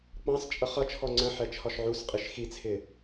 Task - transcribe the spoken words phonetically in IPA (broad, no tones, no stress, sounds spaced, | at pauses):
k͡p ɑ̃ s t͡ʃʼ ʌ χ ʌ t͡ʃʰ ɔ ŋ͡ǀ ə̃ ħ ɛ t͡ʃʰ ɒ ʃ ʕ u s qʼ i ʃ x i t͡sʰ ɪ